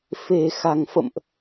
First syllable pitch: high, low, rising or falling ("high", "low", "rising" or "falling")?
low